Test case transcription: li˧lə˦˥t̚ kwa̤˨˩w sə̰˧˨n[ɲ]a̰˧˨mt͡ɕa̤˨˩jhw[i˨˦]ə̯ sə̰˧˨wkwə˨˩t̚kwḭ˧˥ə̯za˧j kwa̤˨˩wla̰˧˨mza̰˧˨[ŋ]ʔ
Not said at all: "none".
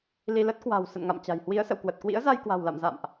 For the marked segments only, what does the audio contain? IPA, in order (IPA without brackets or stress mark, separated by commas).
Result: ŋ, i˨˦, m